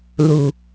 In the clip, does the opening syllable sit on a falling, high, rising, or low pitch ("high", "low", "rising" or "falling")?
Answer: low